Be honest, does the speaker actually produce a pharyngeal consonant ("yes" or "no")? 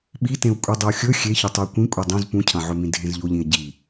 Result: yes